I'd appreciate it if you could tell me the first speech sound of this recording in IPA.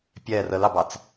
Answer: pʲ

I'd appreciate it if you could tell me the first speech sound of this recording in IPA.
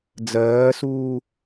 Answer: d͡z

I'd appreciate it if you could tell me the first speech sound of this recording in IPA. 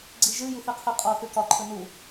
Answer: ɡ͡ǀ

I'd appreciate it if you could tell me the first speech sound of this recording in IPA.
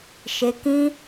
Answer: ʃ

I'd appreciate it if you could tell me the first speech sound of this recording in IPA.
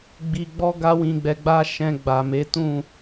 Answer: ɡ͡b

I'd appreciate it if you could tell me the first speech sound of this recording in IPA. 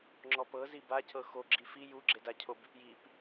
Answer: ŋ͡ǁ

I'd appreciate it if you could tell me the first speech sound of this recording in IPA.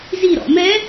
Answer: z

